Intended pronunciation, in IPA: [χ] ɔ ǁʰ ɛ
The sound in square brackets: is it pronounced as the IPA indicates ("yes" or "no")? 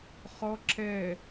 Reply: yes